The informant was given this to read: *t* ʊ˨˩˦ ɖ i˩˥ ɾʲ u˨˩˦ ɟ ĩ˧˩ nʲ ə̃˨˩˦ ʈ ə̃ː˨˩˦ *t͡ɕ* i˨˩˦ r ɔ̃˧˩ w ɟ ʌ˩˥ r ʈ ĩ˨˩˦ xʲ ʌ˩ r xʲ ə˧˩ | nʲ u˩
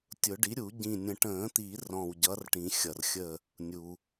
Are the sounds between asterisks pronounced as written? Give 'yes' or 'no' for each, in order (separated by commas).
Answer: no, no